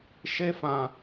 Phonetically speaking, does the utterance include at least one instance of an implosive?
no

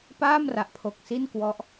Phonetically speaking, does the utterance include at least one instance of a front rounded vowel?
no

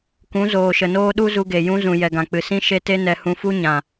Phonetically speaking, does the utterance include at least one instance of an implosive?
yes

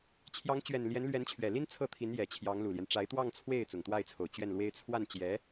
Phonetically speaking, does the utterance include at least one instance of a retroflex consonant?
yes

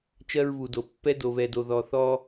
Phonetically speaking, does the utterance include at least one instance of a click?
no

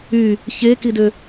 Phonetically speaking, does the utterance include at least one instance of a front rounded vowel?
yes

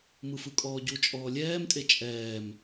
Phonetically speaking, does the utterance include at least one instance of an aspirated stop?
no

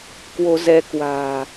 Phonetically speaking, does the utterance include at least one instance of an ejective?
no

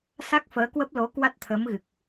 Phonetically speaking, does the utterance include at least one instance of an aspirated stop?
yes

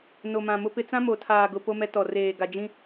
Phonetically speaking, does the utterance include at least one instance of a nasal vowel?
yes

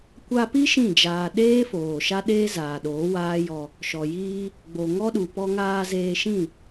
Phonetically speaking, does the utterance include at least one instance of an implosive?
yes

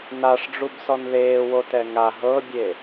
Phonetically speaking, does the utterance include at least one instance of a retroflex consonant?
yes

